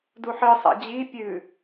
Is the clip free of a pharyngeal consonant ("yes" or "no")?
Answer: no